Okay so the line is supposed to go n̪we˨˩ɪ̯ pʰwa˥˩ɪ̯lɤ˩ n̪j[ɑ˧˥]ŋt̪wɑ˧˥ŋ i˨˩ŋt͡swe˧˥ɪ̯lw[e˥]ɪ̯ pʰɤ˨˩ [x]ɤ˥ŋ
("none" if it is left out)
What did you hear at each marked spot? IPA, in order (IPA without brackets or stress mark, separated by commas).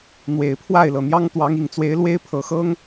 ɑ˥, e˥, x